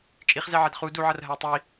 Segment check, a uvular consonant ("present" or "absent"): present